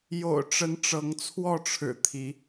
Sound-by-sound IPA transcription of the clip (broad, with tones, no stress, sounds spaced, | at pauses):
j o̰˨˩ ʊ̯ ʈ͡ʂ ə˨˦ n ʈ͡ʂ ɤ˨˦ ŋ t͡sʰ w ɔ˥˨ ʈ͡ʂʰ ɻ̩˨˩ t̪ʰ i˨˦